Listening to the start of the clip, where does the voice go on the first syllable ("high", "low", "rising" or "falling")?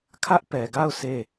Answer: high